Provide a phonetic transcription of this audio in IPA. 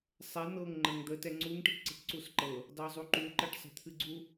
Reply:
sˤ ɛ n̪ ɤ ŋ ŋ͡ǃ ə ŋ d̪ ə t ɛ ŋ͡ǀ u ŋ ʈ i ʈ ǀ i̤ ʈ ǀ u s ǃ ɤ | d ɑ zˤ u ǃ u ǃ ə ʈ sˤ ə̤ t̪ʰ ɨ ɡ͡ǀ u

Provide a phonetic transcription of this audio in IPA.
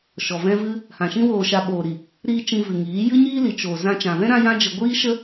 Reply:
ʃ ɔ˨ v ɛ̃˦ v ɨ˦ | h ã˨ ʃ ĩ˦ w oː˧ ʃ a˧ ɓ oː˨ ɾ i˨ | ɾ iː˧ t͡ʃ ĩ˧ v ɨ˨ ŋ iː˨˦ j ɨ˦ ɲ iː˦ l i˨ t͡ʃ oː˨ z ã˧ t͡ʃ ã˨ v ɛ̃˦ ɾ ã˦ j ã˦ d͡ʒ ə˧ ɡʷ iː˦ ʃ ə˦

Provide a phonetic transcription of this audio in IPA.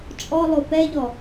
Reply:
t͡ʃʼ ɔ lˠ o p ɛ ʎ ɔ

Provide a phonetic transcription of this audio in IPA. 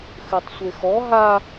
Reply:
x ɨ tˤ sʷ e x ɔ ɦ a

